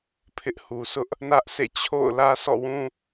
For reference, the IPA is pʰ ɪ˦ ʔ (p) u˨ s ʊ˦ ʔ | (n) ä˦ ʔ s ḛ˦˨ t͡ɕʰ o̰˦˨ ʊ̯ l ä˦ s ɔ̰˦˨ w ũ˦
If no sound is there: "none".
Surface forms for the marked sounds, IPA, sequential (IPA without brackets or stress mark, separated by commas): h, n